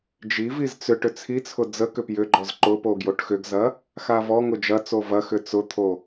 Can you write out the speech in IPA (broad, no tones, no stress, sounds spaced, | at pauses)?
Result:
d͡ʒ i v i z t͡s ʏ ʈ ʏ t͡sʰ i t͡sʰ ʊ d͡z ə k ʏ p j ʏ ɡ͡ǃ ɔ z ǃ ʊ p o ɡ j o ʈ x ʏ ɡ z ɐ | x a v ɔ ŋ ʊ d͡ʒ ɐ t͡s o v ɐ x ʏ t͡s ʊ t̪ʰ o